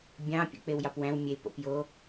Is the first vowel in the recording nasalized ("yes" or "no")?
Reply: yes